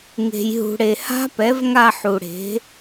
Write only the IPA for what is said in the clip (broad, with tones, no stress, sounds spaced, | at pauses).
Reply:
ŋ e̤˨ j ɦ ṳ˨ ɽ e˨ h a̤˦˥ p ɛ˩˥ v ŋ a˥˧ ħ u˨ ɽ e̤˩˥